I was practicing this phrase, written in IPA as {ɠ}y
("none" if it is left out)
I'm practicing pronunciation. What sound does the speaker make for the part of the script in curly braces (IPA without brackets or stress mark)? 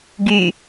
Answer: ɡ